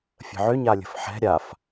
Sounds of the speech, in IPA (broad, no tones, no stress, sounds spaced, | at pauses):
fʲ ə̤ ʕ ʏ ɲ a lʲ ə̤ f ħ ɛ̤ ɾʲ a f